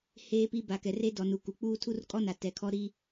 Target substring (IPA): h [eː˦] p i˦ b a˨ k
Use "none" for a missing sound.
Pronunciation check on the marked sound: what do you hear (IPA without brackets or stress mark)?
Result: eː˦